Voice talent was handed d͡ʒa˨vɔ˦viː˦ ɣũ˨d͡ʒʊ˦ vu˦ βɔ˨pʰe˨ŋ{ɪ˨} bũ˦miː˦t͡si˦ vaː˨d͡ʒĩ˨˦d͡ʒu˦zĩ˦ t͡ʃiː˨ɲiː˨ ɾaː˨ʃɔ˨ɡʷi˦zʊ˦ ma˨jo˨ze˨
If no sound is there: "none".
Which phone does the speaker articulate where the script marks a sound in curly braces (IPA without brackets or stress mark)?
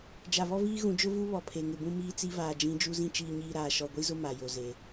ɪ˨